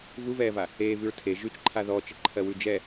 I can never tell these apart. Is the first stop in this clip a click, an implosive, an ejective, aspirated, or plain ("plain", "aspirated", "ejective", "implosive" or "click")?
aspirated